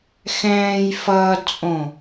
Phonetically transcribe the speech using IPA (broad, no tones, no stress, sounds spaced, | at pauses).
x ɛ̃ː j f ʌː d t͡sʼ õ